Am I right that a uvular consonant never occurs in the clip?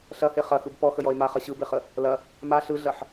no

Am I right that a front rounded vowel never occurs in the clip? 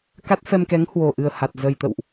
yes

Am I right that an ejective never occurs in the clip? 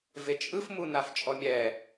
no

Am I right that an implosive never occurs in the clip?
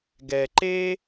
yes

